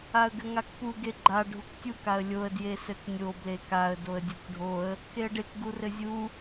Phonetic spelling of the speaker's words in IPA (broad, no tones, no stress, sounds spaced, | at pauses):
a ə̯ ɡ ɘ ŋ a k p u ɡ e ɡ͡ǃ a ɖʱ u k tʲ u k a ə̯ lʲ o ə̯ d j e s ɘ k nʲ o b l e k a ə̯ d o ə̯ dʲ o k ɖʱ o ə̯ | k e ə̯ ɖ e k ɡ u r ɘ zʲ u